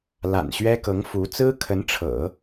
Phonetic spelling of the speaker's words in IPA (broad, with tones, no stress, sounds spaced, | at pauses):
l a̰˨˩ n ɕ ɥ ɛ˥ k ɤ˧˥ ŋ f u˧˥ t͡s ɹ̩˥ kʰ ə˧˥ n ʈ͡ʂʰ ɤ̰˨˩˦